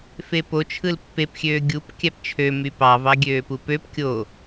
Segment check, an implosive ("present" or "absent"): absent